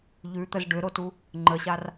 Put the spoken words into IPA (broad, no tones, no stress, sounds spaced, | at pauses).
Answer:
ʎ ʉ t̪ ə z ɖ ʏ ɾ o t u | ŋ͡ǃ ə ɕ a r